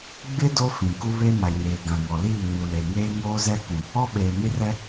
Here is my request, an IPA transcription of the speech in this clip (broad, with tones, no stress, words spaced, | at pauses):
ɡ͡bɪ˦ do˦fĩ˨ ku˦ βe˦ma˨ɲeː˨ ɡã˨ŋɔ˨liː˦˨ ɲu˨le˨ ŋeː˦ŋoː˦zɛ˦kũ˨ | ɔ˦ɓeː˨ni˦rɛ˦